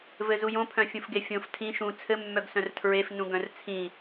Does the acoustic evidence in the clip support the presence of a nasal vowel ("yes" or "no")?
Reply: yes